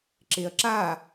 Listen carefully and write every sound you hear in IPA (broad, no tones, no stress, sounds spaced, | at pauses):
ǁ e ɐ̯ ǁ a